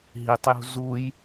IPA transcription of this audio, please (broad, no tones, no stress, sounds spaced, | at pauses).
ɦ i tˤ j ṳ z u j